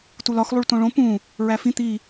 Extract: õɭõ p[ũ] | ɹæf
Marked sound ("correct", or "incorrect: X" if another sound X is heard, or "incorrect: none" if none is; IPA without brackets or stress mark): correct